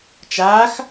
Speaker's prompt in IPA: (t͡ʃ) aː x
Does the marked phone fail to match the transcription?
no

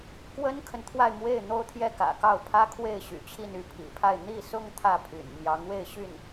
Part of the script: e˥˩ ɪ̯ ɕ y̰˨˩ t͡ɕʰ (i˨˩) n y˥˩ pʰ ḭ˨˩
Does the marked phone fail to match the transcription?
yes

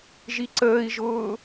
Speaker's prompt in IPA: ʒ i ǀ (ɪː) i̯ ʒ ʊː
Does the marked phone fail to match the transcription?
yes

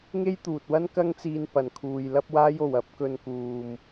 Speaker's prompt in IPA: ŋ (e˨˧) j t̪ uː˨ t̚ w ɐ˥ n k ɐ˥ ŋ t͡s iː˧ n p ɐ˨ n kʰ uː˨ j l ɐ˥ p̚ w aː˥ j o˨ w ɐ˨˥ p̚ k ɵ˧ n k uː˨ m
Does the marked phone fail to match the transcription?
yes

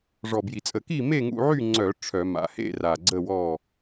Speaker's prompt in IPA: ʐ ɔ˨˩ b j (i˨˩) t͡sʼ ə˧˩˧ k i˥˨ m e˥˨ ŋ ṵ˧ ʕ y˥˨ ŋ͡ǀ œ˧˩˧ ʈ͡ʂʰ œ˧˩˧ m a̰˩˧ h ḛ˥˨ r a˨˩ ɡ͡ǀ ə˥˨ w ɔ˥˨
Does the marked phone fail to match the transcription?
no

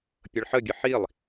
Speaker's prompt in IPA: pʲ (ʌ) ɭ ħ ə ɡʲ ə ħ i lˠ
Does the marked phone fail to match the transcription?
no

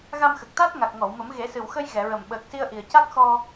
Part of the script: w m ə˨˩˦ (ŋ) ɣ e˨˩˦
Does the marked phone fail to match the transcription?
yes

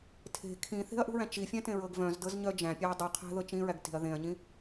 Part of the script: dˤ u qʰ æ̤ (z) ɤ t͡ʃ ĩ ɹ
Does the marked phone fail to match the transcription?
yes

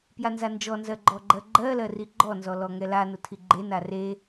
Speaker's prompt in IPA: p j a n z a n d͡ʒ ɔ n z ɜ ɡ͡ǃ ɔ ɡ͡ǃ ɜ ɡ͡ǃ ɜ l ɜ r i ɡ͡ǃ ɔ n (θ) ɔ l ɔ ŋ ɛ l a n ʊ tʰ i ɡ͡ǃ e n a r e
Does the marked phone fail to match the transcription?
yes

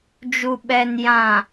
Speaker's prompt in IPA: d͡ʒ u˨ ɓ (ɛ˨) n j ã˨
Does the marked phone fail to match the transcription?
no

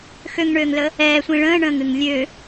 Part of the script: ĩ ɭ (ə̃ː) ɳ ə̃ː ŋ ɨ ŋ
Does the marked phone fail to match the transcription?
no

